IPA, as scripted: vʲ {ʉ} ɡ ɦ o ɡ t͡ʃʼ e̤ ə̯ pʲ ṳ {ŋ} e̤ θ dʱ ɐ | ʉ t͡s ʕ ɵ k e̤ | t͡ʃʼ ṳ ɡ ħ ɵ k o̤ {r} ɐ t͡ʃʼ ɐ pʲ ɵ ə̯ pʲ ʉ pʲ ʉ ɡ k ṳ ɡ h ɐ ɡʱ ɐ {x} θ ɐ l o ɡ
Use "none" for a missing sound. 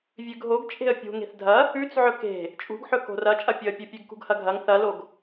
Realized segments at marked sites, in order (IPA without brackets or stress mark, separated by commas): ʉ, ŋ, r, ŋ